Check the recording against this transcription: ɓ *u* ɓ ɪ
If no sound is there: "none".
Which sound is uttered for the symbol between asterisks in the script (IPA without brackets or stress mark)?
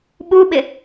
u